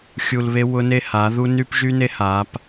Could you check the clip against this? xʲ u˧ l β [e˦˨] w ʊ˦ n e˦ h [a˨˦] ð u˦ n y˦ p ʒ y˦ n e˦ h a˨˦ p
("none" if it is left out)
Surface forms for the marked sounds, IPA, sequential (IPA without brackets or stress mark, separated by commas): e˦, a˨˦